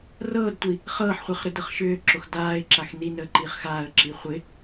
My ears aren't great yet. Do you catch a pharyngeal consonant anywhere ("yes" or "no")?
yes